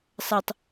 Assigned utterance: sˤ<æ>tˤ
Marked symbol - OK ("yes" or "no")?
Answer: no